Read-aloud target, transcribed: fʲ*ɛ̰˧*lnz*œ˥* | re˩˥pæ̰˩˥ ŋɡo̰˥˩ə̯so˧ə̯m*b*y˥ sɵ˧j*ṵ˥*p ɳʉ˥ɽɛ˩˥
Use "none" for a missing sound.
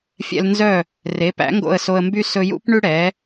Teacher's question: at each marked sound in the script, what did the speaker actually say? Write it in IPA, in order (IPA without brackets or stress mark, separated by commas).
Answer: ɛ̰˧, œ˥˩, b, ṵ˥